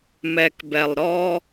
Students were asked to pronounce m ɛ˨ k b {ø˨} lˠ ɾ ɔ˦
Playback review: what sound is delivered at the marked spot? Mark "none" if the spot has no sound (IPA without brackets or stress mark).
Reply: ɛ˨